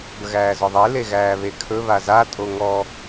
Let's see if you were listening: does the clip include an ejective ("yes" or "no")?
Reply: yes